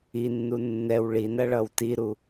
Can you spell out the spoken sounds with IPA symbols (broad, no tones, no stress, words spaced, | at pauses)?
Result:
inːu nːɛw ɭinɐɭʌw tiɾu